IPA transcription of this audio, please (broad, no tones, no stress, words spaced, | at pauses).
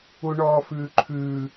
uɳɔːfʉːǃʰʉː